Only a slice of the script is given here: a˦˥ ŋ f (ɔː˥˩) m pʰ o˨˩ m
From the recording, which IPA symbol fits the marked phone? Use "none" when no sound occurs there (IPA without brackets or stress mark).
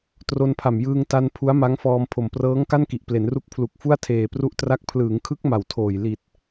ɔː˧